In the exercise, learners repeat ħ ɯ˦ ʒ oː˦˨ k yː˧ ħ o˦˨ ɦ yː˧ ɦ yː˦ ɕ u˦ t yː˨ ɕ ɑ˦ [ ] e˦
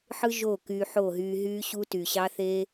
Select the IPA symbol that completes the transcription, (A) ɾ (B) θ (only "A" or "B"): B